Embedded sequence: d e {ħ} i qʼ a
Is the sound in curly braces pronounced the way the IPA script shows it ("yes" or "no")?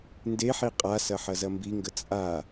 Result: yes